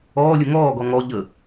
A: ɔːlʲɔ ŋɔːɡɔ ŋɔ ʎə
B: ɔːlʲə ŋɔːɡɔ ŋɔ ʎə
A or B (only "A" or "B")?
B